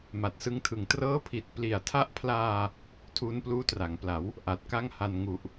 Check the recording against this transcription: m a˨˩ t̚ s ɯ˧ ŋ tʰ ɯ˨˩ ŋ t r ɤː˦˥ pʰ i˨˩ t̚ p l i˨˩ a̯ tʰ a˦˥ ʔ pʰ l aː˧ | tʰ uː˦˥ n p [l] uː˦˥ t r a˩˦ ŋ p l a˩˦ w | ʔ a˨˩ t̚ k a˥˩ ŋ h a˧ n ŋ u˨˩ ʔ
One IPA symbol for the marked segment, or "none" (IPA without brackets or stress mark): l